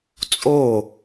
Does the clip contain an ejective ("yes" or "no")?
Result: yes